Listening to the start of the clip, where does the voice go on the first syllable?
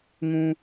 low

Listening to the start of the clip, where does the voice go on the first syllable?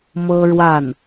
high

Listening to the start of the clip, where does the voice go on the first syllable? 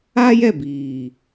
high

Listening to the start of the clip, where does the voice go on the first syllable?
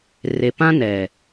low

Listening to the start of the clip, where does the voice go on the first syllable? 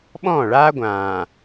falling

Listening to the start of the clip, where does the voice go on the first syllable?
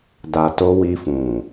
low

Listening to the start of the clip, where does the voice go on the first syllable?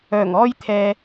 low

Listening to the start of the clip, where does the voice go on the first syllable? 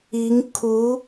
rising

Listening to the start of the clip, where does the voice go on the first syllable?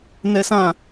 high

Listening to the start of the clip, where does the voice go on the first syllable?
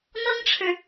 high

